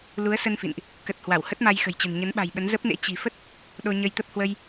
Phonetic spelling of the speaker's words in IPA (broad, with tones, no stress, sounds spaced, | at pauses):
l u˨˦ ə̯ s ə˧ n f ḭ˧˨ n ʔ | k ə˨˩ t̚ h w a˧˩ w h ə˦˥ t̚ m a˧ j x ə̤˨˩ j t͡ɕ ə̤˨˩ n ɲ ə˨˦ n ɓ a̤˨˩ j ɓ ə˨˦ n z ə˦˥ p̚ n ḛ˧˥ t͡ɕ i̤˨˩ f ə˦˥ t̚ | ɗ o˧ ɲ ə˧ j t̪ ə˦˥ p̚ h w ə˧ j